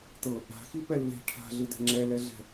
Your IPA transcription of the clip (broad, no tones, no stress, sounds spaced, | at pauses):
t ɤ | a̤ x i p ɛ lː e̤ ʈʰ a̤ ɮ ɯ d ɛ̤ ŋ͡ǁ ɛ l ɛ ɮ ɛ̤